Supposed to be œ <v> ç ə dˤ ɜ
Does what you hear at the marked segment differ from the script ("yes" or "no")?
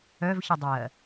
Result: no